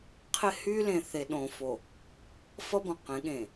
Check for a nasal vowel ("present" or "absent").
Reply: present